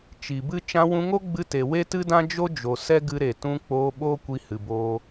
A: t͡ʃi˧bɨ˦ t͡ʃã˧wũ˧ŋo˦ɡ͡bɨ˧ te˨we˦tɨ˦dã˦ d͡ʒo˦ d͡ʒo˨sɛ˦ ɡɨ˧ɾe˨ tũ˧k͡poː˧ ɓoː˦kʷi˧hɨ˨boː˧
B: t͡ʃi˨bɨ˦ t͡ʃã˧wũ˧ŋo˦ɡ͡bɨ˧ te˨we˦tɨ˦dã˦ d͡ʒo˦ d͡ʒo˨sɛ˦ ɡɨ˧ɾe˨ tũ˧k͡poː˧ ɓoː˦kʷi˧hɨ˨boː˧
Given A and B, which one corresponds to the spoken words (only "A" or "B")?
B